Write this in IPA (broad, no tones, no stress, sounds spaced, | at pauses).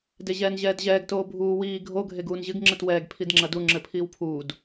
d e ʑ ɛː n ʑ ɛː d ʑ ɛː ɡ t oː bʱ uː w iː ɡʱ o ɡʱ e ɡ uː n ʑ ɨ ɡ ŋ͡ǁ ɘ t w ɛː ɡ pʰ i d ŋ͡ǁ ɐ d u ŋ͡ǁ ɘ pʰ iː w pʰ uː d